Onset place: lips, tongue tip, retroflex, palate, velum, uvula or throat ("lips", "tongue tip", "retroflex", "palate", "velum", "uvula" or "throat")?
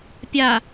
lips